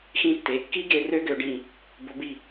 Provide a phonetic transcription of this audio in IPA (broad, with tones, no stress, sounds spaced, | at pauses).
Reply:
x ĩ˧ tː e˩˧ kː i˦˥ ɡ e˧ r ø˦˥ ɡ ø˩˧ ɖ ĩ˧˩ | b o˩˧ b i˧˩